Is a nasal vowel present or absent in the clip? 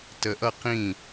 present